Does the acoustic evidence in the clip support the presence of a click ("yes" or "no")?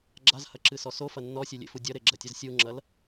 yes